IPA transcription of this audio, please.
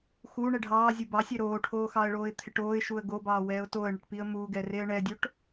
xu ɳɛɖʱɑː zʲubɑsʲɛ ɾoːʈʰoːxɑə̯ɭoːɪ̯ t̪ʰɪʈoːɪ̯ʃuə̯ ɡobɑː wɛːʊ̯toə̯ɳɪʈpiə̯ muɡɛ reə̯ɳɛdʲoʈ

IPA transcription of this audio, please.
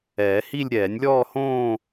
ɛː˨˩˦hi˥˧lʲ ɾʲɛː˨˩˦nʲlʲɔː˥˧hõː˥˧

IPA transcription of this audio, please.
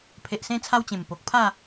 pʰe˨ʔsẽ˧t͡sʰa˧w t͡ɕẽ˨˩mpo˨k̚pʰa˥˧

